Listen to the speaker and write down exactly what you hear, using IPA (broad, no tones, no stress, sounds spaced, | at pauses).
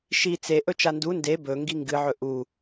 ʃ i t͡s e ʔ ɵ t͡ʃ a n d u n d e b ɵ ŋ ɡ i ŋ ɡ ɨ ʕ ɵ ʔ u